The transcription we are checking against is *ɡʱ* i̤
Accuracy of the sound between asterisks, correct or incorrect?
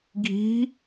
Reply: correct